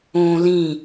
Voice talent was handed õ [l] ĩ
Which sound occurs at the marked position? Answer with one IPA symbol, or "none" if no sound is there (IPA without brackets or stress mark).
l